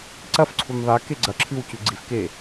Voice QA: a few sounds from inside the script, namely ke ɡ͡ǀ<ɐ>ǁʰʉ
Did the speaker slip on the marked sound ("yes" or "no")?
no